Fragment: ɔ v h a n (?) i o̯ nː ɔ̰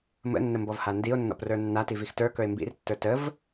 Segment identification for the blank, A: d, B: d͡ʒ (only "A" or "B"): A